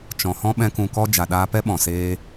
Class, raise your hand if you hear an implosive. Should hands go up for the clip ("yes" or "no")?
yes